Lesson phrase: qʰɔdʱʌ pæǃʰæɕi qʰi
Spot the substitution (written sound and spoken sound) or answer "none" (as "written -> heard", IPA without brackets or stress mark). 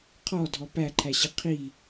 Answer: ʌ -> ɔ